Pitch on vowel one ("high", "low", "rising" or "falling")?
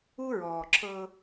high